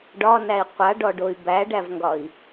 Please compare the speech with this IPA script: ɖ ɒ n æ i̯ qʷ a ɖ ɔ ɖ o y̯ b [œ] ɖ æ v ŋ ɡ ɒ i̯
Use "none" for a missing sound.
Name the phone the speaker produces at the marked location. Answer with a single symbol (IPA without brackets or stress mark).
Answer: æ